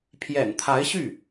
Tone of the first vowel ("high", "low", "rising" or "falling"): low